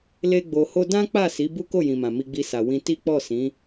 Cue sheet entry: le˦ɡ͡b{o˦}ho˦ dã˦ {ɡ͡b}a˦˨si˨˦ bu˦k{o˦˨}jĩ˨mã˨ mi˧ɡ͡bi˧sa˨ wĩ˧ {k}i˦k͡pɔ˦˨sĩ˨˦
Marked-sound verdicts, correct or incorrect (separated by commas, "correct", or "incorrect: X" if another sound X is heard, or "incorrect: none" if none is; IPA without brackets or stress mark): incorrect: o˧, incorrect: k͡p, correct, incorrect: t